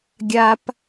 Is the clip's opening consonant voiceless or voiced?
voiced